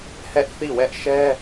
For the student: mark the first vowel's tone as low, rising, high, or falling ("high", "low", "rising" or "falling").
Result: high